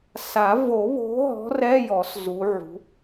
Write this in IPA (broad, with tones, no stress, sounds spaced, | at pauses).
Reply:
s a˨˩˦ v o˨˩˦ β o̤˨˦ ɦ ɔ̤˨˦ r ɛ˧˥˧ j ɔ˨˩˦ s z u˨˦ ʕ ṳ˨˦